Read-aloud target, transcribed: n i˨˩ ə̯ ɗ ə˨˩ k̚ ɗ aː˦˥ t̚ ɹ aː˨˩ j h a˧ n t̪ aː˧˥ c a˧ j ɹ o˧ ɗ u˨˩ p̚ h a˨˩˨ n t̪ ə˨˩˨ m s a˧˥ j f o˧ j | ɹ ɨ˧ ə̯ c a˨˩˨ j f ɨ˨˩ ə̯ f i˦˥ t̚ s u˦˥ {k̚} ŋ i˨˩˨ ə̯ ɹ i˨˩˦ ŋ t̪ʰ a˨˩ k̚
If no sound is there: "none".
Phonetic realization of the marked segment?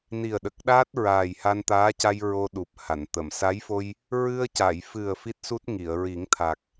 t̚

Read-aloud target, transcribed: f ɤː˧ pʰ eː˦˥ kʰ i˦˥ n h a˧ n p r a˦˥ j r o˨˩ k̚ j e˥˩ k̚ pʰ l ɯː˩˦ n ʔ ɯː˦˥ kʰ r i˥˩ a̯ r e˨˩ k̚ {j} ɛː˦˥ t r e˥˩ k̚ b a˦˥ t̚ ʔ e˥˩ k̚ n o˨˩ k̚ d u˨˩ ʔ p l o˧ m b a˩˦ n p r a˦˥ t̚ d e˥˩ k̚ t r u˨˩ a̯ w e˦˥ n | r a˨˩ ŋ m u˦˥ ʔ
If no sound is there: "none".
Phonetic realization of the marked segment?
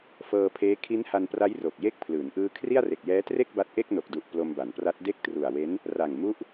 j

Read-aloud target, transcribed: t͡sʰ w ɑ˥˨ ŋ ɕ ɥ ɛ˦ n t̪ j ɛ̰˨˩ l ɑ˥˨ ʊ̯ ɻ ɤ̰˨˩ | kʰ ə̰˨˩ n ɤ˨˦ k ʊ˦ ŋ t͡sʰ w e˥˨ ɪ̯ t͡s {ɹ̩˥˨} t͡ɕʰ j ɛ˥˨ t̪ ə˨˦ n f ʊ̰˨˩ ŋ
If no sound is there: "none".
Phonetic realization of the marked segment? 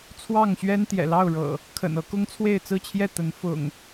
ɹ̩˥˨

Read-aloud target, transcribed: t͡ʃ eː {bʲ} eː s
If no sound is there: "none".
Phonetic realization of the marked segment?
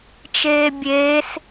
bʲ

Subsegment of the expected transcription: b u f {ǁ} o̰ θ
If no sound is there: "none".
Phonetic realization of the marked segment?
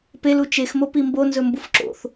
ǁ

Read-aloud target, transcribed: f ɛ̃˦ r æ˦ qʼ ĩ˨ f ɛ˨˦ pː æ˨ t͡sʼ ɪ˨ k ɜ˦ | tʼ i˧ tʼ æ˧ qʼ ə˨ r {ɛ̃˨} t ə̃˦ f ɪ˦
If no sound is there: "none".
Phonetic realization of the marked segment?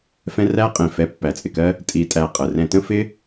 ɛ̃˧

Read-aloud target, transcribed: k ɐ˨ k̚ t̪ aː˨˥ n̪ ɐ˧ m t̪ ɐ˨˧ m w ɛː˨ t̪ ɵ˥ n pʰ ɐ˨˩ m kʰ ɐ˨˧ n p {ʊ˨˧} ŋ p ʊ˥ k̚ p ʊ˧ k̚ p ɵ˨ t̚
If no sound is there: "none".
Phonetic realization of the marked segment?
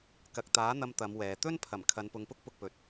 ʊ˨˧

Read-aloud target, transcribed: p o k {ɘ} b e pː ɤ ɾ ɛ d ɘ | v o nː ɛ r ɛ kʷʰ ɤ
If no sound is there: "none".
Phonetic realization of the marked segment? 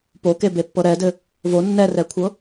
e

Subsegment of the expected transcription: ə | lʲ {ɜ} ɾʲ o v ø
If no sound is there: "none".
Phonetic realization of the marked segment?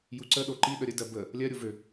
ɜ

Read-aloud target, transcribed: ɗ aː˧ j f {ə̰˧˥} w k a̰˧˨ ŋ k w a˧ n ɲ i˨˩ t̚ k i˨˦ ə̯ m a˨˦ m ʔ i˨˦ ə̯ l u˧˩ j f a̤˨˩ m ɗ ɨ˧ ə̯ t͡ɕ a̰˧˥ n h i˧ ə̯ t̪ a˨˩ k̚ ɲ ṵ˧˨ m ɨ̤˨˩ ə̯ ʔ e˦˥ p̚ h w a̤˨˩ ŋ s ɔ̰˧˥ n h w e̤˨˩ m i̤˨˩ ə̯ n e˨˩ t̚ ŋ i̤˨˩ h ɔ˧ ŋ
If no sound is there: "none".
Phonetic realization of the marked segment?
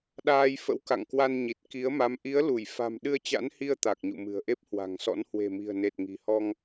ə̰˧˥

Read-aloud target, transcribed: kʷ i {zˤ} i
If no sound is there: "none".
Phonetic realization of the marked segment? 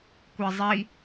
zˤ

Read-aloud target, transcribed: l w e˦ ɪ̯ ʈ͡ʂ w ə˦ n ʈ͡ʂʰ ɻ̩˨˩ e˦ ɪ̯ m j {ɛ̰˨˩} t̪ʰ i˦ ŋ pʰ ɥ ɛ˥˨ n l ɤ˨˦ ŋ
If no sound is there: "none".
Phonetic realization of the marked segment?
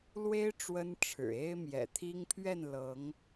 ɛ̰˨˩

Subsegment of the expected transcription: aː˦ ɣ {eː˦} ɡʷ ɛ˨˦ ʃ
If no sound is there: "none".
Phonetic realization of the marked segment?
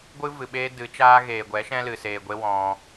eː˨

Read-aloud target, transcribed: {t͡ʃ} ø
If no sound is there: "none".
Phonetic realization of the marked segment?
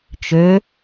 t͡ʃ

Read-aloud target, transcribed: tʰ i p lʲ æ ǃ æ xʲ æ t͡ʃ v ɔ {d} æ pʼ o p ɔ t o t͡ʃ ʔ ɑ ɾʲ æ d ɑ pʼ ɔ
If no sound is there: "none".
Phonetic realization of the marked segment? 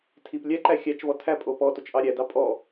tʰ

